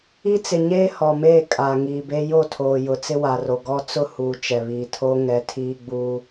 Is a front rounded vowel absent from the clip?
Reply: yes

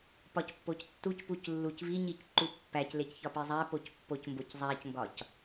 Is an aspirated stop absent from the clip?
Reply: yes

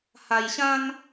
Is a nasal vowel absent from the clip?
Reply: no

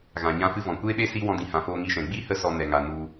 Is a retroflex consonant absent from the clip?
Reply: yes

